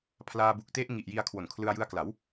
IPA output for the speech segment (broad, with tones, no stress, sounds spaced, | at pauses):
pʰ l aː˧ b u˨˩ k̚ t e˦˥ ʔ ŋ i˨˩ ʔ j i˧ a̯ kʰ w o˨˩ n kʰ l ɯ˧ a̯ j ɯ˧ a̯ k l a˩˦ w